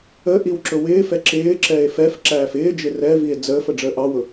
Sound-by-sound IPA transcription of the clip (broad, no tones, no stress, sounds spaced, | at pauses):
ə ʔ i w ǁ ʊ w ɪː f ɛ ǁ ɪː ǁ ɛ e̯ f ɛ f ǁ æː f ɪː d͡ʒ ɪ r ɛ v i e̯ d͡z əː f ə ɖ͡ʐ əː ʔ ɑ w ʊ